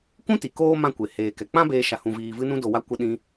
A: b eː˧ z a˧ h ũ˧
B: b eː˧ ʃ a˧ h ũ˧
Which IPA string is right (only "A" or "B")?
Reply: B